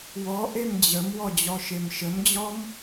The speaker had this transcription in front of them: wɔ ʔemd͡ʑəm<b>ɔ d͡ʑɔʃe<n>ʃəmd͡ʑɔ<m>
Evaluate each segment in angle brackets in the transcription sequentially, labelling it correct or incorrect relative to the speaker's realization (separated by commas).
incorrect, incorrect, correct